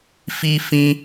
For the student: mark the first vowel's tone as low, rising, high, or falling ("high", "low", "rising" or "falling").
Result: high